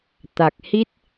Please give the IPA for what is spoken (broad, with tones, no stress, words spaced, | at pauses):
t̪a˨˩k̚hi˦˥t̚